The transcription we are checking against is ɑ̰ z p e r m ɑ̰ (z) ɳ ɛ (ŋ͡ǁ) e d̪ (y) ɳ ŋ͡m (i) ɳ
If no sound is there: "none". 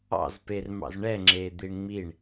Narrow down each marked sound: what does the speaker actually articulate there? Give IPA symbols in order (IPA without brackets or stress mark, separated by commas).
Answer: z, ŋ͡ǁ, i, i